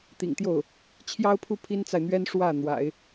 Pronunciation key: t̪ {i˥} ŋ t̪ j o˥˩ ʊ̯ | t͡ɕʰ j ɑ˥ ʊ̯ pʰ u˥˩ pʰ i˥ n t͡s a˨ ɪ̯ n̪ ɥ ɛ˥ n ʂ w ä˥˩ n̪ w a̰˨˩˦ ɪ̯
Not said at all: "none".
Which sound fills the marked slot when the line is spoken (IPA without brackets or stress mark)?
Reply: ḭ˨˩